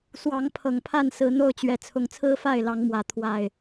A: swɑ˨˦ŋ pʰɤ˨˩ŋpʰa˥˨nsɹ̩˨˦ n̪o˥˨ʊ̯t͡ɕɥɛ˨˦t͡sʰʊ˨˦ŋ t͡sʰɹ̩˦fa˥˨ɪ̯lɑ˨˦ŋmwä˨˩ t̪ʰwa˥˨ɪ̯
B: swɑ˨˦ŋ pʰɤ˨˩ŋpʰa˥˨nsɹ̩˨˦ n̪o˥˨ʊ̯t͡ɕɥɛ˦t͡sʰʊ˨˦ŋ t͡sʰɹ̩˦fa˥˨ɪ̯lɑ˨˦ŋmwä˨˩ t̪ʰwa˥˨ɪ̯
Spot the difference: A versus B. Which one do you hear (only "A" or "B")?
A